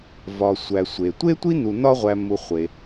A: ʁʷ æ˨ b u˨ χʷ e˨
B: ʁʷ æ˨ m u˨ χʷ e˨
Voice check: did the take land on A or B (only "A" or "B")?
B